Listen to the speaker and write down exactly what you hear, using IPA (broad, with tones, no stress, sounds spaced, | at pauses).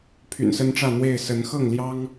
pʰ y̰˨˩ n s ə˦ n ʈ͡ʂ ä˥˨ n̪ w e˥˨ ɪ̯ s ə˨˦ n x ɤ˥˨ ŋ l j ɑ˦ ŋ